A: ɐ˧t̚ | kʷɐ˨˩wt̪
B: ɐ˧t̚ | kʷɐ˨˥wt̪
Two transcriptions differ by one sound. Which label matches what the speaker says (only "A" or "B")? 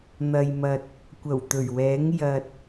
A